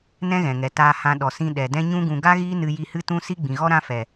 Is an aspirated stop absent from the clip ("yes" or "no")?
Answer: yes